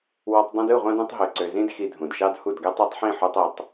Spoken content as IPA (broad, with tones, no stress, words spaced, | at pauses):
wɑ˧tˤ dˤõ˧dɯ˦˨ʁʷɑ̃˧d ũ˧tˤɦø˨ ǀø˨zĩ˦d xi˧dʱũ˨dʃɑ˦d hu˦˨dɡæ˦tˤ æ˧tˤħĩ˦˨ ħo˧tˤi˨tˤ